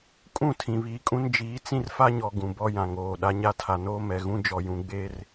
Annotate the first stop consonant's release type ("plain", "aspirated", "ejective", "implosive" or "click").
ejective